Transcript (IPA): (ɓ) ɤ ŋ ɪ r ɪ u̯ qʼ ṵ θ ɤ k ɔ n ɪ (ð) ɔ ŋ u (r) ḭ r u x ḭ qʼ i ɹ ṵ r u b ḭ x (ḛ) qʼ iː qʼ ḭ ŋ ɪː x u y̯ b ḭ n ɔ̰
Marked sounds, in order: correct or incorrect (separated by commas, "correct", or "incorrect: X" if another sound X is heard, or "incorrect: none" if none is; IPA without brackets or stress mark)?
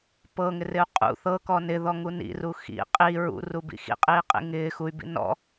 incorrect: p, correct, incorrect: n, incorrect: ḭ